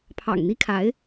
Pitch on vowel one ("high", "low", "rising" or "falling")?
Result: low